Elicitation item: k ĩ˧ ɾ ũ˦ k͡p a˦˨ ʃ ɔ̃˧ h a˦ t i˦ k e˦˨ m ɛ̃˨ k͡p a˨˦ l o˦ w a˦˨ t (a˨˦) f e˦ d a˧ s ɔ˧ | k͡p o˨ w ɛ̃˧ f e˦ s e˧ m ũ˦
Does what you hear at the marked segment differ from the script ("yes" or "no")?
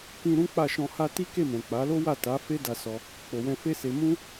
no